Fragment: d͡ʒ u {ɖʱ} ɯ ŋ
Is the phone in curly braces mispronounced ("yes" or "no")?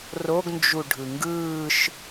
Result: no